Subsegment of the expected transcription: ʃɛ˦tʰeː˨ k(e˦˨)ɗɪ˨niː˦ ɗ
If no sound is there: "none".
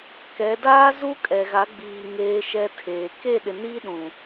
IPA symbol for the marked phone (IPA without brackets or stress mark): e˦˨